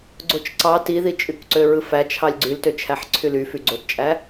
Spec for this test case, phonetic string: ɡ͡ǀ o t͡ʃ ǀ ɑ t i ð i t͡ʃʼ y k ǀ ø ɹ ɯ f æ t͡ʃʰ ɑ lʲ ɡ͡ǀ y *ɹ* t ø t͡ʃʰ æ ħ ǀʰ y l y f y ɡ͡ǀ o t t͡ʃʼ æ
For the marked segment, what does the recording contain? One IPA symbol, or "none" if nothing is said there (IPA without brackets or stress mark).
l